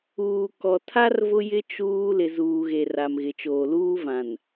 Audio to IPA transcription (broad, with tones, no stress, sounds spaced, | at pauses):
uː˨ k ɔ˨ tʰ a˦ r v ʊ˦ j ɪ˦ t͡ʃ uː˦ l ɪ˨ z uː˨ ɣ e˨ r a˨ m ɣ ɪ˨ t͡ʃ oː˨ l uː˦ v ã˨ n